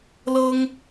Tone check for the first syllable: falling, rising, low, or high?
high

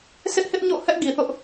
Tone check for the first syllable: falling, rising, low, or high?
high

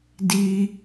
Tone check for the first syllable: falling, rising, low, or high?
high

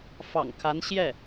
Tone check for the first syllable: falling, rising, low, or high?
low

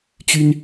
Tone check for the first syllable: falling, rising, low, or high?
high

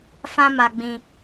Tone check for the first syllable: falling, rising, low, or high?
high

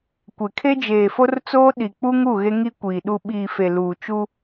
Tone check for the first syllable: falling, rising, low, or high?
low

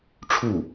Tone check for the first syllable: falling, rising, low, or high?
falling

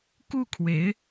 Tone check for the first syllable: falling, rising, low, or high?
falling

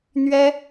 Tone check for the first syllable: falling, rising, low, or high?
high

